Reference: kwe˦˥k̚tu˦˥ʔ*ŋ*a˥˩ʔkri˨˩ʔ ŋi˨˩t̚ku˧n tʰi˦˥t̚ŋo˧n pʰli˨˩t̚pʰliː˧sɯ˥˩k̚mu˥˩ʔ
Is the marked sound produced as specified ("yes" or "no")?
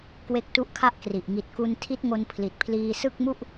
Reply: no